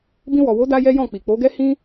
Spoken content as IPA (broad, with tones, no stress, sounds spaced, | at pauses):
b ĩ˧ w ɔ˨ w o˨˦ d a˦ j ɛ˦ j ɔ̃˦˨ k͡p i˨ k͡p o˨˦ ɡ ɛ˦ h ĩ˦